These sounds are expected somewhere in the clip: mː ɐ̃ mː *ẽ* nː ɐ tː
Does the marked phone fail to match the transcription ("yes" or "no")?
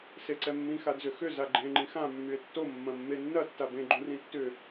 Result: yes